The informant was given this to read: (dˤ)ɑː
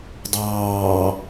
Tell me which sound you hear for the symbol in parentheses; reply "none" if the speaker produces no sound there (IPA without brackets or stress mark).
dˤ